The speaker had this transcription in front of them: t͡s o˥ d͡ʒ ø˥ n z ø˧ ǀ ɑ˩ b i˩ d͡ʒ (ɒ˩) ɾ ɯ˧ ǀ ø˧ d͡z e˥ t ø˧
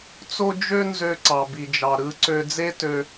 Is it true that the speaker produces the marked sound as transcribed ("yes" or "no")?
no